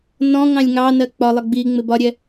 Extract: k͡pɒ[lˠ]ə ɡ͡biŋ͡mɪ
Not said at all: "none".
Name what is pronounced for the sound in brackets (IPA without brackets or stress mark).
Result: lˠ